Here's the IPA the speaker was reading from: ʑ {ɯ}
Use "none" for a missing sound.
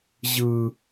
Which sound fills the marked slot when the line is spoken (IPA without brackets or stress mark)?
ɯ